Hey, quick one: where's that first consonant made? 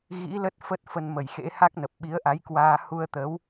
velum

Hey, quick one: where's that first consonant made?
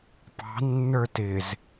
lips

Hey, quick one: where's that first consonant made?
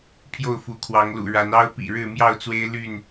lips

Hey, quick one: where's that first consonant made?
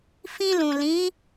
lips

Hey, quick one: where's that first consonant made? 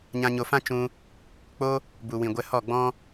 palate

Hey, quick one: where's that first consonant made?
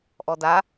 throat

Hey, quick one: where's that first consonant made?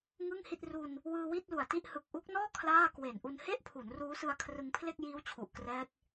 velum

